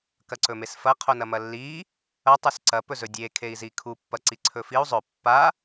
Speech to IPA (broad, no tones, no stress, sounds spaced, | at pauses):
k ɐ ǀ ɵ m e s f ɐ qʰ o n ɐ m ɐ lː i | ɐ tˤ ʉ s ǀ ɐ p ɵ z ɵ dʲ e kʰ e i̯ z i kʰ u pː ɐ ǀ i ǀʰ ɵ f i u̯ zˤ ɵ pː a